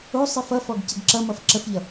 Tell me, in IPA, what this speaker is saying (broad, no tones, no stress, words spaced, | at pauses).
o sˤifʌfɔɡ cəɡǁʌmʌf ǁəfʎʌ